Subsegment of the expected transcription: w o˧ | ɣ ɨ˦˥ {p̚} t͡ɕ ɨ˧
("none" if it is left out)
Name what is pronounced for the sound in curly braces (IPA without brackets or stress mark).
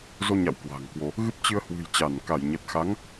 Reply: p̚